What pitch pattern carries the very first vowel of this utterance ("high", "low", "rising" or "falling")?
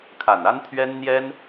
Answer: low